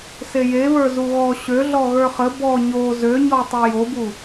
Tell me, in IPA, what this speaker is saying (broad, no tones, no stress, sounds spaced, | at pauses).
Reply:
s e j e β ə˞ z u ɣ ɔ ɕ ø ɮ ɔ ɣ ə˞ χ ə b ɔ ɲ o z ø ɲ ɔ tˤ e j o b u